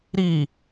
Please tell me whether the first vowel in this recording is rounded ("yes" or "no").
no